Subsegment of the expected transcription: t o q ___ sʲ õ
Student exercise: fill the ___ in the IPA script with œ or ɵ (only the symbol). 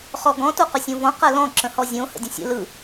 ɵ